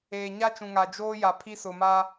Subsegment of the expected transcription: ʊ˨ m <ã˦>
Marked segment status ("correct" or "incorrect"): incorrect